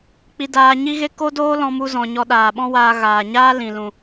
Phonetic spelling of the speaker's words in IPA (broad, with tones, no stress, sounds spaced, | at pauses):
k͡p i˧ d aː˧ ɲ i˦ ɣ e˦ k o˦ d oː˦ l ɔ̃˧ m u˧ z ɔ̃˨ ɲ ɔ˧ ɗ aː˨ ɓ ɔ̃˦ w aː˧ ɣ aː˨ ɲ aː˦ l ĩ˨ l ũ˨